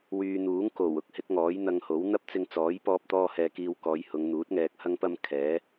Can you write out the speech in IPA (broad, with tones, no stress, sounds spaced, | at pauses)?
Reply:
w yː˨ n̪ uː˨˥ ŋ k o˨˩ w ʊ˥ k̚ h ɪ˨˥ k̚ ŋ ɔː˨˥ j n̪ ɐ˧ ŋ h o˨˥ w n̪ ɐ˥ p̚ t͡s ɪ˧ ŋ t͡s ɔː˨˥ j p ɔː˧ p̚ t̪ ɔː˧ h ɛː˨ k iː˧ w k ɔː˨˧ j h ʊ˨˧ ŋ n̪ uː˨˥ t̚ ŋ ɛː˨ k̚ h ɐ˧ ŋ p ɐ˧ m kʰ ɛː˨˥